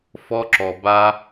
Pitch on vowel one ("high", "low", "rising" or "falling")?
high